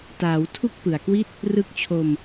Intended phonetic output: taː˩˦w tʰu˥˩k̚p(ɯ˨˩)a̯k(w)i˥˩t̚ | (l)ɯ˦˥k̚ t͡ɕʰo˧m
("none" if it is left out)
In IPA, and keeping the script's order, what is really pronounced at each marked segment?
ɯ˨˩, w, r

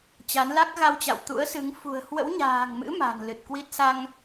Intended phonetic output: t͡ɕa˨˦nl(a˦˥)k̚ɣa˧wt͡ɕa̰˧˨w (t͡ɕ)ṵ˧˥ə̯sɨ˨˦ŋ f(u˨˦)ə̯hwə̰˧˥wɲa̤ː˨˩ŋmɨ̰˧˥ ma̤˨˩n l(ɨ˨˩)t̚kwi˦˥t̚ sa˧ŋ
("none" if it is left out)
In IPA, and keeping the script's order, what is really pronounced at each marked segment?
a˦˥, t̪, ṳ˨˩, ɨ˨˩

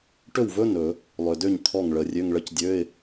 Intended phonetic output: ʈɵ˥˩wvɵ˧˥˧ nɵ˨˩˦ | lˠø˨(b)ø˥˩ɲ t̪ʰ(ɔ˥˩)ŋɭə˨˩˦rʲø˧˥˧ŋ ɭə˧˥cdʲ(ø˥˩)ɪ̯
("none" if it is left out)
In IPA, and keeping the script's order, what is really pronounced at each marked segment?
d, ɔ˥˩, ø˧˥˧

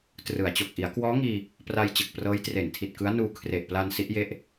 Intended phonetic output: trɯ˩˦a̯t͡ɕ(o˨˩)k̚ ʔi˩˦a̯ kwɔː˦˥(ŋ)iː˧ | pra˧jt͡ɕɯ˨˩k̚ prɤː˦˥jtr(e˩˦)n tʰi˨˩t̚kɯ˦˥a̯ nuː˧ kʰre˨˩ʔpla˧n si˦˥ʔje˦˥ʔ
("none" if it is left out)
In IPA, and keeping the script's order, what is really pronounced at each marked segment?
o˨˩, ŋ, e˨˩

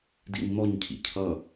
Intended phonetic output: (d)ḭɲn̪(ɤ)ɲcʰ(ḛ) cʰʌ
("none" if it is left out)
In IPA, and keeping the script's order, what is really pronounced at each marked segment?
d, ɔ, ḭ

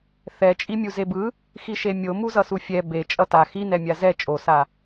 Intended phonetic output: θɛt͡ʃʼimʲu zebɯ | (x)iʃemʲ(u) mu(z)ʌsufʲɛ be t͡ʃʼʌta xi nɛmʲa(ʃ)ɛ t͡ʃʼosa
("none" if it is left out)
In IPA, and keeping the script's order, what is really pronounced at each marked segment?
x, o, z, z

